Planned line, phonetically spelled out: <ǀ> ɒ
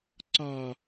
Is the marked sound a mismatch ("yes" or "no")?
no